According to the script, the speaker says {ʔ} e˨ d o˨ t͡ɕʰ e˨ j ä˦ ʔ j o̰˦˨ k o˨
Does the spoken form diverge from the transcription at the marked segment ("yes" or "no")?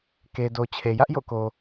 yes